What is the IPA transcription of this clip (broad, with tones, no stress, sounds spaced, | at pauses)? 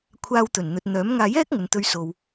kʷʰ aː˧ w t̪ ɵ˨˩ n n̪ ɵ˨ t̚ n̪ œː˨˥ m ŋ aː˧ j ɛː˥ k̚ ŋ ɵ˨ n t̪ ɵ˧ ɥ s o˨ w